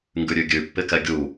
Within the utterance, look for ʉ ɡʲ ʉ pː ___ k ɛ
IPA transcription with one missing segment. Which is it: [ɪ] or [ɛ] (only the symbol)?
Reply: ɪ